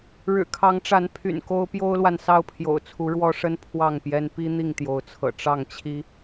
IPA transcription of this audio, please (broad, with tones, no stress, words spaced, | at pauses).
ɻɻ̩˨˩kʰɑ˨˦ŋʈ͡ʂa˨˦n pʰy̰˨˩nko˦ʊ̯ pjo˦ʊ̯lwa˨n sɑ˥˨ʊ̯pʰjo̰˨˩ʊ̯t͡sʰu˨˦ ɻwɔ˦ʂə˦n pʰwɑ˥˨ŋpjɛ˦n pi˦ n̪i˥˨ŋt̪jo˨˦ʊ̯t͡sʰɤ̰˨˩ ʈ͡ʂɑ˥˨ŋt͡ɕʰi˦